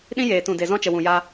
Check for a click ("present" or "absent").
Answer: absent